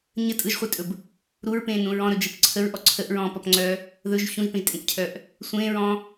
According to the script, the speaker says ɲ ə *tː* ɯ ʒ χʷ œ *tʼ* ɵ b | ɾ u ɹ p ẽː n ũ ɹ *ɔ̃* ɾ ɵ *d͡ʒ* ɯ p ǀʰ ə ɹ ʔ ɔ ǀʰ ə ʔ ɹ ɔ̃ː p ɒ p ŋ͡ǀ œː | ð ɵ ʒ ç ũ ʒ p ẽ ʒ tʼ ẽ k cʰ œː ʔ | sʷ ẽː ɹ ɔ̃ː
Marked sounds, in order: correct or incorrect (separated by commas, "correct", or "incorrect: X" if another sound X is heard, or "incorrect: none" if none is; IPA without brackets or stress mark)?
incorrect: tʼ, correct, correct, correct